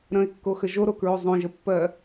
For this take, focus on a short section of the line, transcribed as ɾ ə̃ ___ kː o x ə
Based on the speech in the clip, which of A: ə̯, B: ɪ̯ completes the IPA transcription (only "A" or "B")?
B